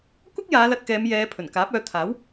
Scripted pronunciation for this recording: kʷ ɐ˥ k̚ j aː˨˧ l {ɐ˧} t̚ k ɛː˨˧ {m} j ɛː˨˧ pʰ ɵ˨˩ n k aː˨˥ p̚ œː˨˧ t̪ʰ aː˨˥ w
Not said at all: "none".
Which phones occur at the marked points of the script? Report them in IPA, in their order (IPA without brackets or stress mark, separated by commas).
ɐ˧, m